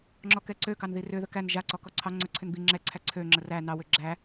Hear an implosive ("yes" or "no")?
no